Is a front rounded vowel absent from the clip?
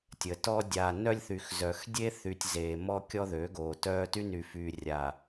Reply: no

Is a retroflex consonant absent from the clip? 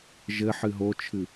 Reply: yes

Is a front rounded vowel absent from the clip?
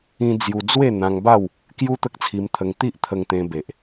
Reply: yes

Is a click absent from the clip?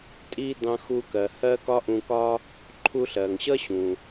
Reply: no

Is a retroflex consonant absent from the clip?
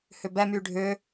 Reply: no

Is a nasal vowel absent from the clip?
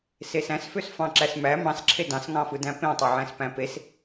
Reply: no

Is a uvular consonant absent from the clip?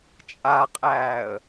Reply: no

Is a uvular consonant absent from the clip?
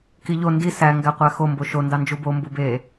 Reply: no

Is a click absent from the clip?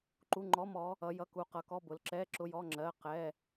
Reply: no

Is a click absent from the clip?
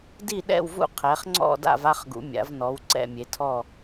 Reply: no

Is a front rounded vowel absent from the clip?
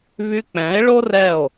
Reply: no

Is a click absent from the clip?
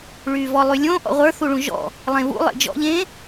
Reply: yes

